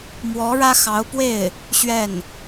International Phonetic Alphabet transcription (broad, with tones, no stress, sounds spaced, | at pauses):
m w ɔ˧˥ ɻ ä˥ x ɑ˧˥ ʊ̯ p w e˥˩ ɪ̯ | ɕ ɥ ɛ˥˩ n